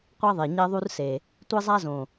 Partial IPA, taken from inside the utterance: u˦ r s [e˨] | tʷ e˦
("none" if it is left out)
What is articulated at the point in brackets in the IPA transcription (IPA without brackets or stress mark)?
e˨